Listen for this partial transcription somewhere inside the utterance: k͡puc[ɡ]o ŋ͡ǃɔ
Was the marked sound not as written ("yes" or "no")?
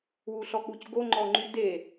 no